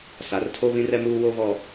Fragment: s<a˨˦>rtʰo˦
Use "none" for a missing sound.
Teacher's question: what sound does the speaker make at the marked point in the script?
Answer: a˨˦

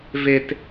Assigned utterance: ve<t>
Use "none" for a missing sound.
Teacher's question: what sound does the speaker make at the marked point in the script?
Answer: t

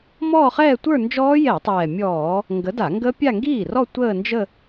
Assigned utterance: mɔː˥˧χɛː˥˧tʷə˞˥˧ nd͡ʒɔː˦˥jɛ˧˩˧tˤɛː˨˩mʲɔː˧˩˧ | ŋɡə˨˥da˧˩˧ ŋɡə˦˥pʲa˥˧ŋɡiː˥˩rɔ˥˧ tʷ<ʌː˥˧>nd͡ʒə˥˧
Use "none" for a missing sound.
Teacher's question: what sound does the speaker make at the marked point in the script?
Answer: əː˥˧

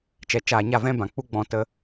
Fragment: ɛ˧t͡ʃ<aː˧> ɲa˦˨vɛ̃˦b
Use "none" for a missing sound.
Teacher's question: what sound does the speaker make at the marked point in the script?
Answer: aː˧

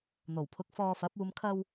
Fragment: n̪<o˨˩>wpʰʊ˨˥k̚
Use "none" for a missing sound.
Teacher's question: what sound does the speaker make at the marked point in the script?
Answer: o˨˩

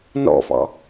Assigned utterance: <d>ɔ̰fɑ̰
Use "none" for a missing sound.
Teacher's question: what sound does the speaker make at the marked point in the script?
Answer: n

